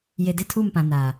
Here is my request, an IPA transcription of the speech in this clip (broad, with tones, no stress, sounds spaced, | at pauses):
j e˨ d ɪ˦˨ tʰ u˦˨ m p ã˨ n a˨